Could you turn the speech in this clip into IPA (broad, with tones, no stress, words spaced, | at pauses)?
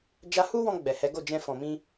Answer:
d͡ʒa˧hu˦wɔ̃˧ ɡ͡bɛ˨hɛ˨˦ ɡo˦˨d͡ʒɛ̃˧fɔ̃˨mĩ˧